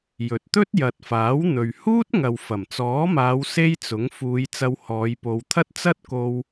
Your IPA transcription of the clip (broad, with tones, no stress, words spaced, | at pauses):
jɵ˨t̚t̪ɵ˥t̚ jɐ˨t̚faː˨˥wn̪ɵ˨ɥhuː˥t̚ ŋɐ˨wfɐ˨˩mt͡sɔː˨˥maː˨˧w se˥jt͡sʊ˨˥ŋ fuː˨˧j t͡sɐ˧whɔː˨˧jpo˨˧wt̪ʰɐ˥t̚ t͡sɐ˥t̚ko˧w